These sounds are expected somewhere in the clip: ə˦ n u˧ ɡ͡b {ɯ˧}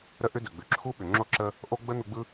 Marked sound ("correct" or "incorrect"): incorrect